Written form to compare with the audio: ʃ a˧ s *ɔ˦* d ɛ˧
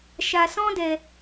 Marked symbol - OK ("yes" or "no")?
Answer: no